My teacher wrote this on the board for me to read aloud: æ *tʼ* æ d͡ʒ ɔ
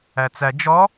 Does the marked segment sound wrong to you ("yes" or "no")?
yes